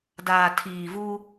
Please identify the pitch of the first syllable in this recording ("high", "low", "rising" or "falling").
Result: low